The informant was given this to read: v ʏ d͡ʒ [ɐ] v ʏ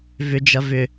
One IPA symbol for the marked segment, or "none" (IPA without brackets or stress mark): ɐ